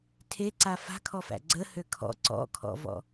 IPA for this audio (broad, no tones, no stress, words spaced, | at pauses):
tʰeǀa fa̤kʰɔfæ̰ ɡ͡ǀəhø kʰɔ̰ ǀɔ̰kʰɔ̰vɔ̰